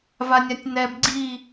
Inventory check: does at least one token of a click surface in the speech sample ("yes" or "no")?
yes